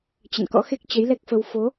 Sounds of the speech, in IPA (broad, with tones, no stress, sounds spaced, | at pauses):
t͡ɕ ə̰˧˨ n k ɔ̰˧˥ x e˦˥ k̚ t͡ɕ ə˨˦ j l ɛ˦˥ k̚ f ə˧ w f o˨˦